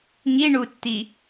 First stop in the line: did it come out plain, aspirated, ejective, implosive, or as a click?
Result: plain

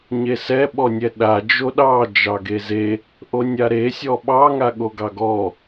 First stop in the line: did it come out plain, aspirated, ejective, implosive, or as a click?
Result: implosive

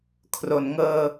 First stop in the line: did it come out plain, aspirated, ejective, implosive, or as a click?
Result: aspirated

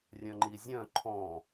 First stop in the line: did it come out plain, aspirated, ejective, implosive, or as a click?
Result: click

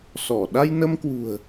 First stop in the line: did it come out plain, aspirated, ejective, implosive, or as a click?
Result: implosive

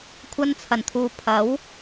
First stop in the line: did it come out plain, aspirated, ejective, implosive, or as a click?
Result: aspirated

